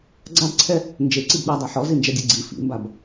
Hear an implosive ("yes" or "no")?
yes